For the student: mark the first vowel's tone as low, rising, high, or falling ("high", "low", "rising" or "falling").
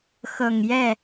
low